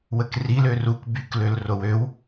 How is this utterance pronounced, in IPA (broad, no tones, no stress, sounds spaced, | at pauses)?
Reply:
w ə k r i l ø r u k b y k l ø l r o w ø w